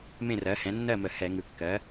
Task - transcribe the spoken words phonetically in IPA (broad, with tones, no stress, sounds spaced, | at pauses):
m ẽ˥˨ r ɜ˩˥ h ɛ̃˩˥ nː ɜ˥˨ m ə˧˩˧ h ɛ˧˩˧ ŋ ɯ˩˧ kː ɜ˩˥